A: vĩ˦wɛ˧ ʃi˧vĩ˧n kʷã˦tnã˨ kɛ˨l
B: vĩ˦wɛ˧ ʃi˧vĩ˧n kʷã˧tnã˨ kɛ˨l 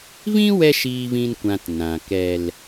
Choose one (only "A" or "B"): B